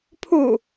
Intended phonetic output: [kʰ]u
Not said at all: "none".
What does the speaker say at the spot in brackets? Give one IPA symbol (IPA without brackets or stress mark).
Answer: pʰ